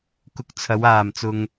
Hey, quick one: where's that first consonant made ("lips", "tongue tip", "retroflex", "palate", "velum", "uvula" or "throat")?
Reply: velum